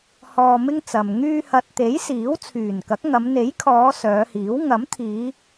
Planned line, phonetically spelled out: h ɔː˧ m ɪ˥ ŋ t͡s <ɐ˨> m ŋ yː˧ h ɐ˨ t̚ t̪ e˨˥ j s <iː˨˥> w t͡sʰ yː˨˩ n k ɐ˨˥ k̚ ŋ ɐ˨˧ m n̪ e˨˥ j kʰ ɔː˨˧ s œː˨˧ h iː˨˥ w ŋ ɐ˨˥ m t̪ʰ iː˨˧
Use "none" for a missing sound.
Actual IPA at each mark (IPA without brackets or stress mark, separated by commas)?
ɐ˨, iː˨˥